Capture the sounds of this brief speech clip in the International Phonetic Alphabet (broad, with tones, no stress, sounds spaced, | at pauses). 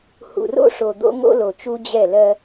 h ṵ˨ r o̰˦ ʂ o˨ d̪ o̰˦ ŋ o̰˦ l o˨ t͡ʃ u˦ d͡ʑ ɛ˦˨ l ɜ˦